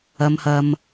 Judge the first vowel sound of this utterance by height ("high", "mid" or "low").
low